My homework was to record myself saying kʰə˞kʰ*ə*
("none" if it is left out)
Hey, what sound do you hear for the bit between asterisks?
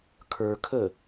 ə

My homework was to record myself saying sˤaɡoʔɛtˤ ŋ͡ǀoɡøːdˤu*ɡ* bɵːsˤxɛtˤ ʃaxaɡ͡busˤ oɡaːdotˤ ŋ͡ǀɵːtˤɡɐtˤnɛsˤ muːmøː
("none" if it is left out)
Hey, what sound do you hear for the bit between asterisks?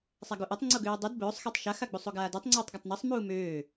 d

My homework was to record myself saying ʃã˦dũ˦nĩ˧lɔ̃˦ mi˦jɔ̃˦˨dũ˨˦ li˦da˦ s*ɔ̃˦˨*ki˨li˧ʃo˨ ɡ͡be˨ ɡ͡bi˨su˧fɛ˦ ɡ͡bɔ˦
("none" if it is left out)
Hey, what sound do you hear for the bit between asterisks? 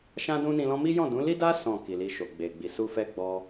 ɔ̃˦˨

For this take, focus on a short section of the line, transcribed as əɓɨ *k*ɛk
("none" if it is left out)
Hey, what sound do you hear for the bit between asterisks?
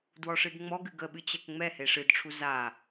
t͡ɕ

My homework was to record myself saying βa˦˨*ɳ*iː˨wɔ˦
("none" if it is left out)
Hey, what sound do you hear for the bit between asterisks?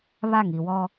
ŋ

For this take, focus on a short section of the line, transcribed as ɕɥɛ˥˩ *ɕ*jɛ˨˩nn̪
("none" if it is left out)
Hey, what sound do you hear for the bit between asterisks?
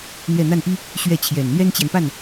t͡ɕʰ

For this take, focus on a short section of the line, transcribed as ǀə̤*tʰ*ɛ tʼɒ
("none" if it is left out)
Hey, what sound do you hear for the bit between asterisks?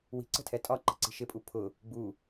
tʰ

